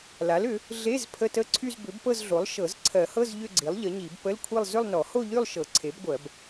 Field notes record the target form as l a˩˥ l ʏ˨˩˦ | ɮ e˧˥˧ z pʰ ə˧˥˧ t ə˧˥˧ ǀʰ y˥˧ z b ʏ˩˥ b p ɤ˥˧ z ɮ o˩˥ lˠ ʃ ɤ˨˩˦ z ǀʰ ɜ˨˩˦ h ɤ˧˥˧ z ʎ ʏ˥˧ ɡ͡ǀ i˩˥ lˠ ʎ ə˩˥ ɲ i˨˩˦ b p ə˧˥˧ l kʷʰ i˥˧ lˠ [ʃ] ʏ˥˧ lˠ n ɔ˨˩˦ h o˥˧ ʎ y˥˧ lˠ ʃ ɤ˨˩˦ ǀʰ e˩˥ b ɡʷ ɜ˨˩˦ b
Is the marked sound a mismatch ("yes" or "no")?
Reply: yes